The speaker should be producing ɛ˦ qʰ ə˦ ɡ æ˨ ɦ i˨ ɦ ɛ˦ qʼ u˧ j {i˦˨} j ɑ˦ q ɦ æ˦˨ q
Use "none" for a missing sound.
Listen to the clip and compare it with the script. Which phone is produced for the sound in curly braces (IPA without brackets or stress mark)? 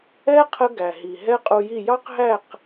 i˦˨